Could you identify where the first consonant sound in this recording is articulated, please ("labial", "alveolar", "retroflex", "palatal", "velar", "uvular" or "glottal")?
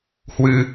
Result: glottal